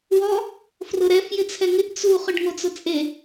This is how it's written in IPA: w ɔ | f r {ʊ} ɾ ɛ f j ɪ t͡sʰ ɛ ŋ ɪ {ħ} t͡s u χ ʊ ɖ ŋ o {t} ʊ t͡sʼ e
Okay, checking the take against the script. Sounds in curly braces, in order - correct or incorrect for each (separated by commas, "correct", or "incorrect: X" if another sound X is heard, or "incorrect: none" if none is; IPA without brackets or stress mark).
correct, incorrect: ʔ, incorrect: t͡s